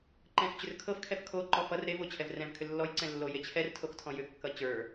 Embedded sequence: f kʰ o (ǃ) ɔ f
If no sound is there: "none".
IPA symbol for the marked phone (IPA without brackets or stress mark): ǃ